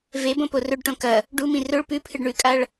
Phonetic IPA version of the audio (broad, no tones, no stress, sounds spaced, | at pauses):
v e b õ p o r ɵ ɖ ʈ õ k ɐ | ɖ u m ĩ r ɵ ɭ p ʉ pʰ ɨ ɖ ɳ ʉ kʼ a ɭ